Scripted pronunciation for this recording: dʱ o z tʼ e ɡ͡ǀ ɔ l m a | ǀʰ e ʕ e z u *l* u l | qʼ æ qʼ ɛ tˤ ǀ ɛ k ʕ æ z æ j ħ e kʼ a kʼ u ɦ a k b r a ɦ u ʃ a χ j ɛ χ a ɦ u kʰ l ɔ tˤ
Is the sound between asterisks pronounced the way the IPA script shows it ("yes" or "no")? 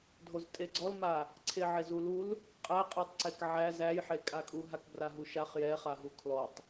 yes